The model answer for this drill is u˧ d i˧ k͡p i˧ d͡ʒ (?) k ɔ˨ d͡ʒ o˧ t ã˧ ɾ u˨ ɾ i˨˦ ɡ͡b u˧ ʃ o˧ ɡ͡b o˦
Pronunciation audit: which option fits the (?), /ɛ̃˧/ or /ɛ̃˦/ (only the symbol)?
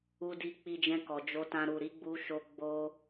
ɛ̃˧